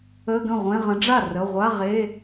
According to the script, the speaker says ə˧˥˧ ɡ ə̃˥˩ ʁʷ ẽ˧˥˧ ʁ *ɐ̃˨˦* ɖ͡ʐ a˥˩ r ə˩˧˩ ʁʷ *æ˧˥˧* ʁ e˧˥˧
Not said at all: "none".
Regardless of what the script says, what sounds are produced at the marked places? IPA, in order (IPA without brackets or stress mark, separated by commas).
ə̃˨˦, a˧˥˧